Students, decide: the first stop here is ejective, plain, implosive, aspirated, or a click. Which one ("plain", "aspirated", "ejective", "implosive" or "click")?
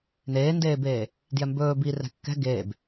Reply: plain